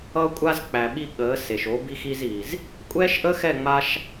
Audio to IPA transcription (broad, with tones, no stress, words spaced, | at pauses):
ʌ˧kʷʼa˧z k͡pæ˨ɓi˧ ɠəː˨˦ se˨ʃo˨˦ bi˧xi˧ziː˨z | kʷʼɛː˦ʃʔəː˦xɛ˦˨ ŋ͡ma˦ʃ